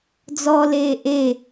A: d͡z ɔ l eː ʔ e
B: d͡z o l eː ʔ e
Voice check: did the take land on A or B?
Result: A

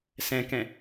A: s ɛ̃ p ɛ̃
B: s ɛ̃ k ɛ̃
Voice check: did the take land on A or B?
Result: B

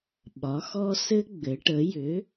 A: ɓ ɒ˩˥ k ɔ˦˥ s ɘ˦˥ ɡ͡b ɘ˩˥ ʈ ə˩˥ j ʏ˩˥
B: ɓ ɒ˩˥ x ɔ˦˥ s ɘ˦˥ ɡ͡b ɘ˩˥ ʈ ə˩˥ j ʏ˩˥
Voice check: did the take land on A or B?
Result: B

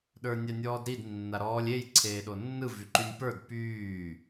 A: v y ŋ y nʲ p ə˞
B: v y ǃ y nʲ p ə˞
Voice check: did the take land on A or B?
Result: B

